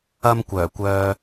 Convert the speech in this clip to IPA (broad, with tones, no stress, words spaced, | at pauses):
ɐ˥m kʷœː˨˩kʷœː˧